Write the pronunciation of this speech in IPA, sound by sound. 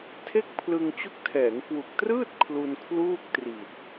tʰe˥˩k̚ pʰlɯ˧ŋt͡ɕu˦˥k̚ tʰɛː˩˦ŋkwu˨˩k̚trɯː˥˩t̚ kʰlu˧n kʰluː˥˩k̚tri˨˩t̚

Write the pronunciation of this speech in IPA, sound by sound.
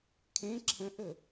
kʰẽ ǁʰə̃ʔə

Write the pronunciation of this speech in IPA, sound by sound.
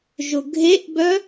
ʒʊɡʱeʔbœ

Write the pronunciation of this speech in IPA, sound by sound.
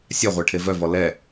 sʲaʁʷɛ ʈʰevœvɔ lɛ

